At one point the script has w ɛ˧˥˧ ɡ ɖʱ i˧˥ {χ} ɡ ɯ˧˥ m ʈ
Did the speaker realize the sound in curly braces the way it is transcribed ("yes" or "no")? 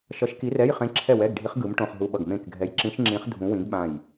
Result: yes